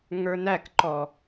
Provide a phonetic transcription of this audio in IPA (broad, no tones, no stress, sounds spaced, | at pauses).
ŋ ə˞ n æ k ǃ ɔ